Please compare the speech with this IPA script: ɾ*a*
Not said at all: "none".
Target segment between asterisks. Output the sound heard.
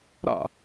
a̰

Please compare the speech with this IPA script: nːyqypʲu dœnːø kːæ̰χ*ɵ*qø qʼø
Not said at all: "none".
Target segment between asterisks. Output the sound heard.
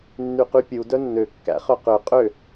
œ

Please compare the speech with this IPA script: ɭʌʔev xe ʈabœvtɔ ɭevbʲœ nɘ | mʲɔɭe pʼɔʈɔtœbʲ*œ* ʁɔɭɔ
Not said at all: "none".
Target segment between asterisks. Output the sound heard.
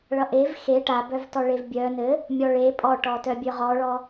ø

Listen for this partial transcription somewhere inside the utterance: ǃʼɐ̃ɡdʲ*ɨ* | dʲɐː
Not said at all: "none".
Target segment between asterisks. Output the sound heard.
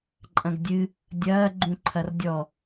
ɨ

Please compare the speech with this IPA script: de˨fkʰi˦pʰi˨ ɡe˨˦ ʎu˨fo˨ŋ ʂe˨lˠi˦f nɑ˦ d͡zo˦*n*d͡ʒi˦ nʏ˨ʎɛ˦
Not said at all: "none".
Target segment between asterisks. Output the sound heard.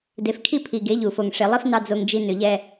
ŋ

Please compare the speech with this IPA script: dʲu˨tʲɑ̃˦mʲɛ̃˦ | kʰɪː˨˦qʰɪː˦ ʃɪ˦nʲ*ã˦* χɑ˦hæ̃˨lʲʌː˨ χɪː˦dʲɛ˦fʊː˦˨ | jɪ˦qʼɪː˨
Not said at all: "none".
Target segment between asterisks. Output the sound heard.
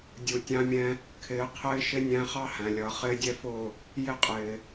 æ̃˦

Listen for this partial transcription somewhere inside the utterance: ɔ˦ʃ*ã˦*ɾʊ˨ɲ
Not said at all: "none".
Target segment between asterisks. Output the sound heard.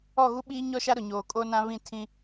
a˦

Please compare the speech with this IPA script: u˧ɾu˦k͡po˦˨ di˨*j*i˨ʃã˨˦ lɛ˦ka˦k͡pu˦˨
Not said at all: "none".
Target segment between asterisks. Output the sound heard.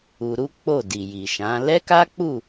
j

